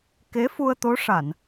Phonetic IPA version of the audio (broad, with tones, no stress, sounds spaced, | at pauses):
k e˧˥ f u˧ ə̯ t̪ o˧˥ ʂ a˨˩˨ n